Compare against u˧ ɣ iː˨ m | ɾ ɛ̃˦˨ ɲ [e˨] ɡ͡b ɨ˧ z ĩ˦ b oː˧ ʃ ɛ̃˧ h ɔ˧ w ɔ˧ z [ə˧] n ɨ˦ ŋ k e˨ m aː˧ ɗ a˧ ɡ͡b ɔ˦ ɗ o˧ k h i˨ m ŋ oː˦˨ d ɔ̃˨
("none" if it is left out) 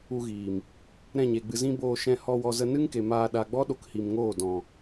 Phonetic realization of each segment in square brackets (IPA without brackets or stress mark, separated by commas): e˨, ə˧